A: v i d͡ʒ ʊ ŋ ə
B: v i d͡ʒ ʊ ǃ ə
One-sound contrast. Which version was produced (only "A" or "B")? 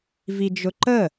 B